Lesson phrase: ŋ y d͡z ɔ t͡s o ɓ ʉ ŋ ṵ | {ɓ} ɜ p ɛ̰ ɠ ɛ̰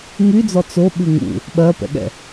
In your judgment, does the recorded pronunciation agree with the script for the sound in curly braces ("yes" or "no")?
yes